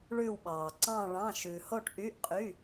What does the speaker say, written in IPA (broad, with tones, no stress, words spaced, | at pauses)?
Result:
ɭʉ˧˩wɓɑː˩ǀɑ̃˧˩ɭɑ̃˩˧˩ ʃʉ˩ ho˧˩ʈʔy˩˧˩ʔqʼy˩˧˩